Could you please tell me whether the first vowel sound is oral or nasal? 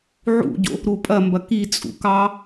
oral